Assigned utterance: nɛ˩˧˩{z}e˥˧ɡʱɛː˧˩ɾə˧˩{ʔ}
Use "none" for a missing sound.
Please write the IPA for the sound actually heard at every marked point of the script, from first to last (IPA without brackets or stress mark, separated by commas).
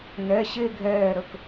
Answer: ɕ, k